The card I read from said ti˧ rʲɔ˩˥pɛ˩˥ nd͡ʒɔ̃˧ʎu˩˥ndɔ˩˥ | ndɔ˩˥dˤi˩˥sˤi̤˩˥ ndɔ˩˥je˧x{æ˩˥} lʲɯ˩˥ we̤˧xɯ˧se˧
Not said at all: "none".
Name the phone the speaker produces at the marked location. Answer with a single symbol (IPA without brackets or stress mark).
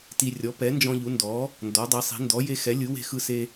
ɛ˩˥